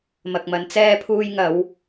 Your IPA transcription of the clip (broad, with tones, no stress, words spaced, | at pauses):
mɐ˨k̚mɐ˨˧n t͡sɛː˧pʰuː˧jŋɐ˨˧w